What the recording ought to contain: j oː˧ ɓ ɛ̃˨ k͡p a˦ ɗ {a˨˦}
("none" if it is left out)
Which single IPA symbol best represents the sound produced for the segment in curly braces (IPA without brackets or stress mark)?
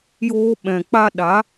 a˨˦